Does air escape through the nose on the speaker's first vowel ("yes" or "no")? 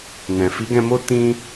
yes